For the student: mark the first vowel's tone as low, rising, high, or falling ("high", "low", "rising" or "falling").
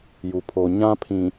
low